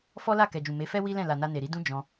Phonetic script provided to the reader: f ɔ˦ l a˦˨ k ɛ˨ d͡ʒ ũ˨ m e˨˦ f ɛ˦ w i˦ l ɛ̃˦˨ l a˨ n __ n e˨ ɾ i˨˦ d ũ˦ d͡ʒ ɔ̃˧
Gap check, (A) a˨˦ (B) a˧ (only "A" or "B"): B